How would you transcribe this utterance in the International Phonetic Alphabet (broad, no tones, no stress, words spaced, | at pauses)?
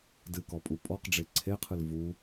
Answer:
dɨkɔpʼu pʼɔqɖ͡ʐe ǀʰeqʰɨl vu